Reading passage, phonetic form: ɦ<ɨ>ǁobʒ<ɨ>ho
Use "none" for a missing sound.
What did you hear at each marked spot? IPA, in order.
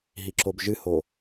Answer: i, ɨ

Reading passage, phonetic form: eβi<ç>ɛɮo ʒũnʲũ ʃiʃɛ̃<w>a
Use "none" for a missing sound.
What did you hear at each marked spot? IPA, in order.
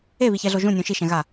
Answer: ç, ɣ

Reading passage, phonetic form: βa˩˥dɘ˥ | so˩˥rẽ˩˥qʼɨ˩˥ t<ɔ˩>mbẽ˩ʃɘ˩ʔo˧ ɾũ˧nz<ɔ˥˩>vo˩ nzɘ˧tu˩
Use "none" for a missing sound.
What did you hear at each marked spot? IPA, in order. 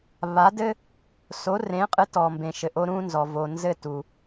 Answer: ɔ˩, ɔ˩

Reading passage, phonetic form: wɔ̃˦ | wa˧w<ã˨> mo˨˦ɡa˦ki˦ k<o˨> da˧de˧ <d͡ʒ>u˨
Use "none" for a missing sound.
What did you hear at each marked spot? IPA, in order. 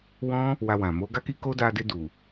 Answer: ã˨, o˦, d

